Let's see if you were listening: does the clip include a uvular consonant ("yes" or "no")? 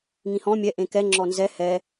no